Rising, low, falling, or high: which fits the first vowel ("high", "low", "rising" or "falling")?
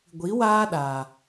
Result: rising